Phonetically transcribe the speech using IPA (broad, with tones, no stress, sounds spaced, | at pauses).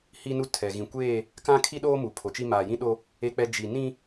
h i˦ n u˦ tʰ ɛ˨ ɣ ĩ˨ kʷ eː˦˨ | k ã˦ kʰ i˦ ɗ oː˦ m u˨ pʰ o˨ t͡ʃ i˦ m aː˨ j ĩ˦ ɗ o˦ | e˦ k͡p ɛ˦ d͡ʒ i˨ n ĩ˦